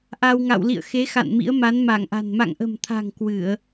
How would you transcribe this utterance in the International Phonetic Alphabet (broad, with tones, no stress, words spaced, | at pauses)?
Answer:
ʔa˧wŋa̰˧˨w lḭ˧˨ə̯xe˨˦ xa̰˧˨nmḭ˧˥ə̯ ma˨˦nma˧˩ŋʔa̤˨˩n ma̰˧˨ŋʔə̤˨˩mt̪ʰa̤˨˩ŋ kwɨ˧˩˨ə̯